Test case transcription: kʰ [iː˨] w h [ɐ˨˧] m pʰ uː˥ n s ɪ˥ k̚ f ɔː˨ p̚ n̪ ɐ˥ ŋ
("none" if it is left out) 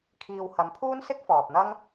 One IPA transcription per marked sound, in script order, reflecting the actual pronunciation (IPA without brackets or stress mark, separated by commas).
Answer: iː˨, ɐ˨˧